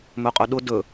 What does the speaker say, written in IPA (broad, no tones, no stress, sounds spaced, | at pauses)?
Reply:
m ɵ qʼ ɵ ɗ ʊ d ɵ